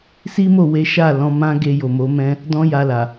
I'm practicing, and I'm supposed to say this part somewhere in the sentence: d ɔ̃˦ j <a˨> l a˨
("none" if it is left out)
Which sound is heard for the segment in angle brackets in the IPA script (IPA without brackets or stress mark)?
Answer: a˧